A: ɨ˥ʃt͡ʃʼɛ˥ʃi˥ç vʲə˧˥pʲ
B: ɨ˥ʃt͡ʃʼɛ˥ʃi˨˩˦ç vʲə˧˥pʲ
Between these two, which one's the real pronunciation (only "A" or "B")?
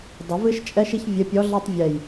A